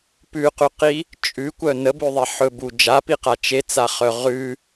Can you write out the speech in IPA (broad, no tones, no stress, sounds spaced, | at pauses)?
p ʉ q ʉ q i | t͡ʃʼ ʉ kʷ œ n ə b ʉ ðˤ e ħ ɵ b u d͡ʒ a p i q a t͡ʃ e t͡s a χ œ ʁ ʉ